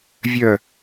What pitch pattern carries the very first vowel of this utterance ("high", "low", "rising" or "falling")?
falling